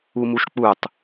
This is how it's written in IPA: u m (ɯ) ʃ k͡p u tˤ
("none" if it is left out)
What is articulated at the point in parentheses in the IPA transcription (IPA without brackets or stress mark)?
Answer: u